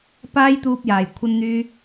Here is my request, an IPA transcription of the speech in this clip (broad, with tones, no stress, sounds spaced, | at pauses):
p aː˥ j t̪ uː˧ p̚ j aː˨˩ j kʷʰ ɐ˧ n n̪ yː˧